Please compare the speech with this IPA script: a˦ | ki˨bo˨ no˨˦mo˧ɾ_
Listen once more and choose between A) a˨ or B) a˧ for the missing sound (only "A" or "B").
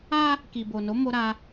B